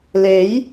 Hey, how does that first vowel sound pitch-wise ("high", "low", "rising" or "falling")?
rising